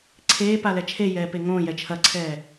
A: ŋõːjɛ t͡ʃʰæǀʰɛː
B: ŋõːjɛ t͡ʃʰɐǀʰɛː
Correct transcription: B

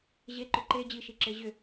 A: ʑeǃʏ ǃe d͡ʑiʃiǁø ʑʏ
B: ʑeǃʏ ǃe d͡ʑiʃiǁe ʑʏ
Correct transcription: B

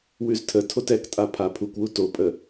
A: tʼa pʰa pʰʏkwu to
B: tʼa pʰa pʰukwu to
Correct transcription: B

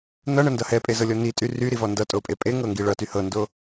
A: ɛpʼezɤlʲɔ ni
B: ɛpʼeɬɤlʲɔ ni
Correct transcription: A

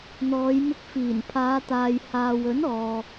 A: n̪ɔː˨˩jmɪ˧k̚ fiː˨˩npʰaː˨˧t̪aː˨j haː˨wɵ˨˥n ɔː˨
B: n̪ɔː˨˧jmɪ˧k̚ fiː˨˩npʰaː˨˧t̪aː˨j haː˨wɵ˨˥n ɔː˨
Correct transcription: B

